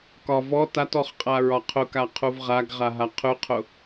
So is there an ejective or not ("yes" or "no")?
yes